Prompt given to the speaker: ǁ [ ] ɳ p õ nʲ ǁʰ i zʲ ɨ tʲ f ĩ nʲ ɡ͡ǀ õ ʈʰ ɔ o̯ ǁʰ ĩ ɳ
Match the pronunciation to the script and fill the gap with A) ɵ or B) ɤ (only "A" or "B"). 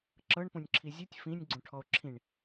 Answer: B